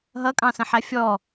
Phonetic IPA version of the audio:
ɦʌkʼɑ̃sə̃ħæ fʲɔ

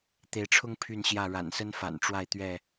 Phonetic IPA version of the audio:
t̪e˨˦ɪ̯ʈ͡ʂʰʊ˦ŋ pʰy˥˨nɕjä˥˨ ɻa̰˨˩nsə˦n fa̰˨˩n ʈ͡ʂwa˥˨ɪ̯t̪ɥɛ˥˨

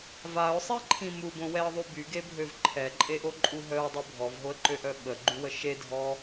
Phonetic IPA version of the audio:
vaʊ̯sˤiǃʰĩ mubõwɛə̯ðˤu byɡebʱøv ǃʰɛǃʼeʔoǃʼu ɦœʊ̯dˤu bʱɔvɦoə̯ǃøʔœ ɓəɡ͡ǃywə ʃedʱɔ

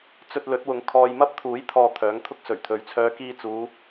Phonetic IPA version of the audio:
t͡sɵ˧t̚lɵ˨˥t̚wʊ˨˧ŋ kʰɔː˨jmɐ˥p̚t̪ʰuː˨˥jt̪ʰɔː˨ t̪ʰœː˨˥ŋt̪ʰʊ˥k̚ sɵ˨˩ɥt̪ʰɵ˨˧ɥt͡sʰœː˧ kiː˧t͡suː˨˧

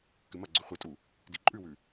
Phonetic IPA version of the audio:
kɨmɐɡ͡ǀʉ χʷetʼu | diǃʼʉwʉ

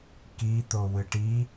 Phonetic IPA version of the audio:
kit̪o wɨʈi

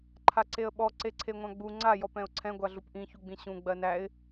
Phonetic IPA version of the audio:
ǃʰaǀeə̯ɓɔ ǀeǀʰeŋʷãɡ͡bu ŋ͡ǀa jɔpɛ̃ʊ̯ǀʰɛ̃ ɡʷaɮupʔĩ çuɡ͡bĩɕũ ɡ͡bɜnæɪ̯

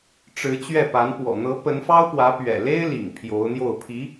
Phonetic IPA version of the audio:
ʈ͡ʂɻ̩˧˥ t͡ɕɥɛ˥˩pa˧˥n pwɔ̰˨˩n̪ɤ˧˥ pə˧˥nfɑ˥ʊ̯pwä˧˥ pɥɛ̰˨˩le˥ɪ̯lḭ˨˩ŋ pʰjo˧˥ʊ̯n̪jo˥˩ʊ̯ pʰi˧˥

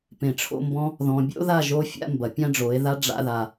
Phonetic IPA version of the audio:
pẽ˨ʈ͡ʂʰo̰˧mbɔ̃˧ | ðɔ̃˨bʲo̰˦ða˦˨ ʒo˦fʲa̰˦mbɐ˨ pʲã˦ɖ͡ʐo˨˦e̯ða˦ ɖ͡ʐa̰˧ða˨

